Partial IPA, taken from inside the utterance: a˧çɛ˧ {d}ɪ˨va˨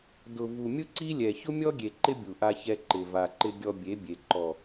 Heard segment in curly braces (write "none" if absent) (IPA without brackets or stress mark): ǃ